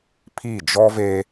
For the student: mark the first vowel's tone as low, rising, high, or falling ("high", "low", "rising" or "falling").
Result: falling